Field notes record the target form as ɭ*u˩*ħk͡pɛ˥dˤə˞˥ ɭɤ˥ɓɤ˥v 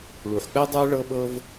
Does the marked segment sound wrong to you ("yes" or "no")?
no